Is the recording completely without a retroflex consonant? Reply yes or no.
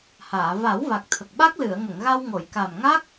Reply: yes